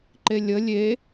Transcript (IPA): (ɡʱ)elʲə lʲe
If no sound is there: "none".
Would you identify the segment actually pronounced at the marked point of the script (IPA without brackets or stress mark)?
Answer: ǃ